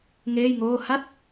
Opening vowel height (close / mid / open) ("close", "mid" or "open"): mid